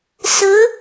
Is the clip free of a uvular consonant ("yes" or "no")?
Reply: yes